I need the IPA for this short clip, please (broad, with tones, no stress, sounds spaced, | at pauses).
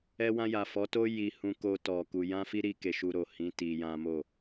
ɛ˧ w ã˧ j a˨ f ɔ˨˦ t o˦ j i˧ h ũ˧ k o˧ t ɔ˨ k u˧ j ã˦ f i˦ ɾ i˧ k e˧ ʃ u˧ ɾ o˨ h ĩ˨˦ t i˧ j ã˦ m o˦˨